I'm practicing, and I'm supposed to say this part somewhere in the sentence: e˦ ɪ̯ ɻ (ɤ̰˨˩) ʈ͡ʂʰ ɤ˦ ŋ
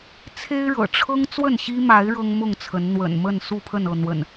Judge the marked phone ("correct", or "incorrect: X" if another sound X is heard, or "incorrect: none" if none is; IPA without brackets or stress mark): correct